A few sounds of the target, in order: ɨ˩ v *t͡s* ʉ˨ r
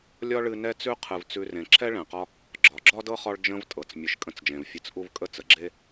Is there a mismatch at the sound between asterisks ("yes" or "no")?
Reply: no